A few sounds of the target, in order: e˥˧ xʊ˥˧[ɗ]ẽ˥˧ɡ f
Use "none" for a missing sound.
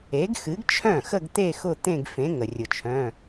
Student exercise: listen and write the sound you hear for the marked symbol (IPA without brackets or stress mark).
t̪